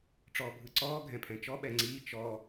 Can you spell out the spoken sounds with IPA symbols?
ʈ͡ʂ ɔː bʱ ɯ ǀ ɔː ɡʱ ɛ̃ pʰ ɛ̃ t͡ʃ ɔ ɓ ɛ ŋ͡ǀ iː t͡ʃ ɔ

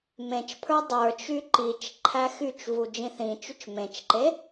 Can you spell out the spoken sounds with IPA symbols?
m ẽ t͡ʃ pʰ ə˞ dˤ ə˞ t͡ʃ y ǃ i t͡ʃ ǃʰ æ x y t͡ʃ v u d͡ʒ ĩ θ ĩ t͡ʃ y t͡ʃ m ẽ t͡ʃ ǃ e

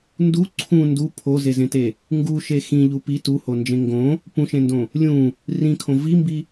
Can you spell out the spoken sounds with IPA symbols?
n d u ǀʰ ũ n d u pʰ o z e z ẽ t e | ŋ ɡ u ʃ e x ĩ ʎ u p i t u h o n d͡ʒ ẽ ŋ ɡ õ | p ũ ʃ ẽ n d õ | lʲ ũ | r ĩ kʰ õ v i m b i

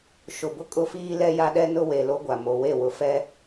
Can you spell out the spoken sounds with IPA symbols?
ʃ ʊ˨ b ʊ˦ kʼ ʊ˦ f iː˦ l ɛ˦ j a˦ ɗ ɛ˦ n ʊ˦ w e˨ l o˦ ɡʷ a˨ m o˨ w e˦˨ w ʊ˨ f ɛ˦

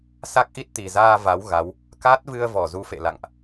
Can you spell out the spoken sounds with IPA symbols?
s a˦˥ k̚ ʔ i˦˥ t̚ t̪ i˨˩ z aː˧ v a˨˦ w ɣ a˨˦ w | k a˦˥ t̚ v ɨ˧ ə̯ v ɔ˧˩ z u˨˦ f ḛ˧˨ l a̰˧˨ ŋ ʔ

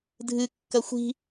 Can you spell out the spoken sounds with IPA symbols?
dʱ ɨ kː ɐ xʷ i̤

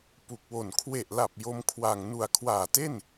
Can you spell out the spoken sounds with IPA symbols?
p u˨˩ k̚ w o˨˩ n kʰ w e˨˩ ʔ l a˨˩ p̚ j o˦˥ m kʰ w a˨˩ ŋ n u˨˩ a̯ kʰ w aː˨˩ t e˥˩ n

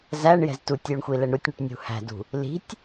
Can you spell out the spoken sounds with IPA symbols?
z æ ɳ j ɛ̤ z t u tʲ j u ɳ xʷ i l ɛ ɳ ɾ u tʲ ɳ u ʈ nʲ ṳ h æ̤ d ṳ | l i̤ tʲ

